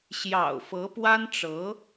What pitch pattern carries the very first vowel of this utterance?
low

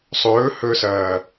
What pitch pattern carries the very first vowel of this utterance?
rising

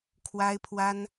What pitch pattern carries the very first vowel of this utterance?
high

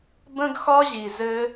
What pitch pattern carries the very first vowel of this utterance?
high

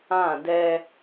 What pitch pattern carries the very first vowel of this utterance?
falling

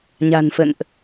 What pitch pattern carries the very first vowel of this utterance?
low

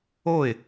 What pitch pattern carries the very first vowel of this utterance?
falling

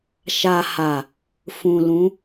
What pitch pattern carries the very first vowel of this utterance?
low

